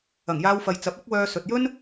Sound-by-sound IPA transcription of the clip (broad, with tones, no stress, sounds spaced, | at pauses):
ɐ˨˩ ŋ j aː˧ w f ɐ˨ j t͡s ɐ˨˥ p̚ ɐ˨˥ k̚ w œː˧ s ɵ˨ t̚ j ɵ˥ n